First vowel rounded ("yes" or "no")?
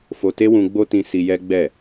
yes